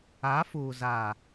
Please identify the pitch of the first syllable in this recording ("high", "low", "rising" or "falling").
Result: rising